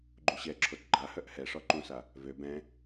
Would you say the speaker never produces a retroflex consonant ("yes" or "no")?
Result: no